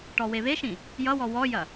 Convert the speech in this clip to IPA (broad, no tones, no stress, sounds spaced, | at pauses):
ʈ ɔ w e β e ʃ ĩ | j ʌ w ɔ w ɔ j ɐ